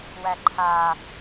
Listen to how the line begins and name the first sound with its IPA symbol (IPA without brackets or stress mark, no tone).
w